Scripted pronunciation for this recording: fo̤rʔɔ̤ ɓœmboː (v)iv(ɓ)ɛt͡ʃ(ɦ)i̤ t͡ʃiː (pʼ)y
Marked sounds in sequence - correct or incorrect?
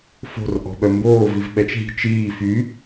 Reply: correct, correct, correct, incorrect: f

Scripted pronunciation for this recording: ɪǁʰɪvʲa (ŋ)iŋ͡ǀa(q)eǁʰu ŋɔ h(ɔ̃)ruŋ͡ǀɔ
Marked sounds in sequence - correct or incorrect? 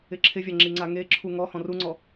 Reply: incorrect: ŋ͡ǁ, incorrect: ŋ, correct

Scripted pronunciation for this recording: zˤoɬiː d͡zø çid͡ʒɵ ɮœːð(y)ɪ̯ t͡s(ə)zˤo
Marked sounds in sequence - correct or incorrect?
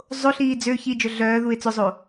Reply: incorrect: u, incorrect: ɵ

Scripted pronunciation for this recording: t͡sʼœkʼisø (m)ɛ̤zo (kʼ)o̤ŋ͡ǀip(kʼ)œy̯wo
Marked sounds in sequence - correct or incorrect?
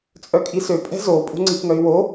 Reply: incorrect: pʼ, incorrect: pʼ, incorrect: ŋ

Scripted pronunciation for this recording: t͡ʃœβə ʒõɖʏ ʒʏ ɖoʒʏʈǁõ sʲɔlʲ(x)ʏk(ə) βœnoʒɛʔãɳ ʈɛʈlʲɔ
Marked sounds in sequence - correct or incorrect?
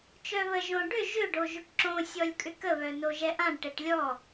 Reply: incorrect: kʼ, correct

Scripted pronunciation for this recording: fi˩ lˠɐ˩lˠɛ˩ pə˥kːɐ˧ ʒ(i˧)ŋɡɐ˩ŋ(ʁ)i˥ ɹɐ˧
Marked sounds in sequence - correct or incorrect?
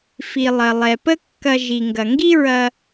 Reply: incorrect: i˩, incorrect: ɡ

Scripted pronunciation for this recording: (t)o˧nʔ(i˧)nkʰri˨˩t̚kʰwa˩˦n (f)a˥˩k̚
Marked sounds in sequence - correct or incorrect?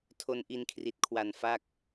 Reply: incorrect: tʰ, correct, correct

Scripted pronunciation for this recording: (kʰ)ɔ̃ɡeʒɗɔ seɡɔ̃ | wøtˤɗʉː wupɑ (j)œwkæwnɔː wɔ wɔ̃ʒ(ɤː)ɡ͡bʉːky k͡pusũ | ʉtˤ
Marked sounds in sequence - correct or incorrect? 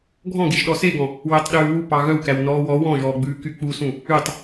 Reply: incorrect: ɡʱ, incorrect: ɣ, incorrect: ɔː

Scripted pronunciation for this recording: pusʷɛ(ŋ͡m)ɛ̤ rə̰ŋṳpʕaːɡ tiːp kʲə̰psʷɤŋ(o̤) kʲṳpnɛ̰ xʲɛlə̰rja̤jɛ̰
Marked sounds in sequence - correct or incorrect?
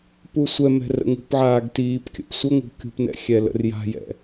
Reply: incorrect: m, incorrect: ṳ

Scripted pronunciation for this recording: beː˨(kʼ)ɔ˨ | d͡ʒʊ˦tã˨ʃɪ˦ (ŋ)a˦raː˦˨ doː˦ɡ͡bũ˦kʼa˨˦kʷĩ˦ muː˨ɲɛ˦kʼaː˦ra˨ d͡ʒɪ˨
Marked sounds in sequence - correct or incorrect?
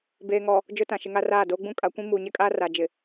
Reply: incorrect: ŋ, correct

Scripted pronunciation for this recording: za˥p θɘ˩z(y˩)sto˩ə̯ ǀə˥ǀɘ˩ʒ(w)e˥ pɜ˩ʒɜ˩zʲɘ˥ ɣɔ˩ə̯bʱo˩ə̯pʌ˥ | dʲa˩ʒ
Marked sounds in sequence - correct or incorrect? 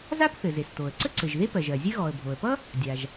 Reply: incorrect: e˩, incorrect: ð

